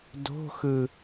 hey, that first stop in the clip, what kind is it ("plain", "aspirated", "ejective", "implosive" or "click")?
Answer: plain